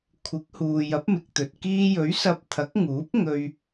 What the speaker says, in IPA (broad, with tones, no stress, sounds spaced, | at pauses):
kʷʰ ɪ˨˥ k̚ h uː˨ j ɐ˨˥ p̚ m ɪ˨ k̚ t̪ ɵ˨ t̚ k iː˧ j ɵ˨˥ ɥ s ɐ˧ p̚ t̪ʰ ɐ˨˥ k̚ ŋ uː˨˥ p̚ ŋ ɵ˨ ɥ